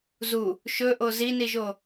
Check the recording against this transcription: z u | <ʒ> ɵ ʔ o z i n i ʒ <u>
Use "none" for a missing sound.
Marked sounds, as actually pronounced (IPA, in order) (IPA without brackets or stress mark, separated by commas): ʃ, o